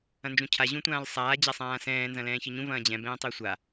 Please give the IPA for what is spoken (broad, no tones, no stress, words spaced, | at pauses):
ɐ̃nd͡ʒũcʰa ʑũtʷãːlsˤaː d͡ʑasˤãːsɛ̃ː nzɐ̃lɛ̃ːçɨɲũ vɐ̃ːd͡ʑɛ̃ bɛ̃ːtˤɵːsʷa